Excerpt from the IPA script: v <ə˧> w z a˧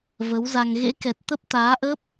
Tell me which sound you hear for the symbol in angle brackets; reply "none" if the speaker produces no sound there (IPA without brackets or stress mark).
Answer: ə˨˦